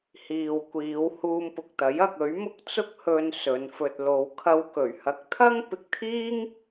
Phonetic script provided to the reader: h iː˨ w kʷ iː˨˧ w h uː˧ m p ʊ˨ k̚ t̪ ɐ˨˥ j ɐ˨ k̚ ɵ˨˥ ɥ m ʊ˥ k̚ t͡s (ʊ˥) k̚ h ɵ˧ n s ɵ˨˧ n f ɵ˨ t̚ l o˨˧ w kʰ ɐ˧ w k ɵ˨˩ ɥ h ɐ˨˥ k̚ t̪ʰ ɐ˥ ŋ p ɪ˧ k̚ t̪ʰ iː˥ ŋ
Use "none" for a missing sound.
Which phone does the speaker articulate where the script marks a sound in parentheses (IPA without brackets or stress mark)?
ʊ˥